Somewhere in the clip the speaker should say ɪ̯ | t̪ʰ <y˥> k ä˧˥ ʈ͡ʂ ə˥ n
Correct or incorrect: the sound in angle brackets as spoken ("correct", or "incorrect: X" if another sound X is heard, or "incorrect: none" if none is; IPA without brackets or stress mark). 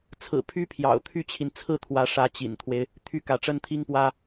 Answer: correct